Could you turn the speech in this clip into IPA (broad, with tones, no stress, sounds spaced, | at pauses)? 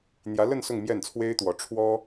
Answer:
n̪ j ä˧˥ l ə˥˧ n s ʊ˥˧ ŋ m j ɛ˥˩ n t͡sʰ w e˥ ɪ̯ t̪ w ɔ˧˥ ʈ͡ʂʰ w ɔ˥